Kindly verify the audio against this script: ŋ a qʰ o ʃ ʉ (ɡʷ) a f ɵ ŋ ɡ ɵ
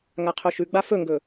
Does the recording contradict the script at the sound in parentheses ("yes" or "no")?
yes